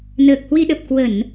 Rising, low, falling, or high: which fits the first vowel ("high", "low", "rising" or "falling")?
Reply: low